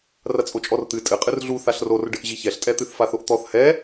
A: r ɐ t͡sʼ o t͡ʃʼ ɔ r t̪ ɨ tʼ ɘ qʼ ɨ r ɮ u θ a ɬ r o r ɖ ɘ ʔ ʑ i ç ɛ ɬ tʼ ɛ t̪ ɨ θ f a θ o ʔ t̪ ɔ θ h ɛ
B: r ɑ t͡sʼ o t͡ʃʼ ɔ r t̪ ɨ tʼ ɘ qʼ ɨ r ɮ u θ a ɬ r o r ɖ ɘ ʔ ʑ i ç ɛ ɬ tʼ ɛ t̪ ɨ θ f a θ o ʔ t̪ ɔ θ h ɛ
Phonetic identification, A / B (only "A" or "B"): A